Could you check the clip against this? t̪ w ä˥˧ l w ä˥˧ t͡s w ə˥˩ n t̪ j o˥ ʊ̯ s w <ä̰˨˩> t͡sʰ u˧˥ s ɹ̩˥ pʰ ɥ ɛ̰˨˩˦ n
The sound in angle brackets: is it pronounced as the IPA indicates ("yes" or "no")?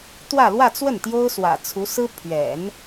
yes